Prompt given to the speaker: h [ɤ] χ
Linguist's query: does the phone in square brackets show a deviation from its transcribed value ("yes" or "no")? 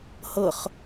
no